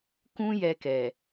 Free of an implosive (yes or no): yes